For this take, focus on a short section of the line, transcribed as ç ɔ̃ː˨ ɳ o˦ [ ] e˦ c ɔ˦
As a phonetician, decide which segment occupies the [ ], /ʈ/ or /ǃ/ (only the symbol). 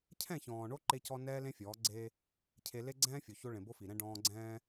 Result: ǃ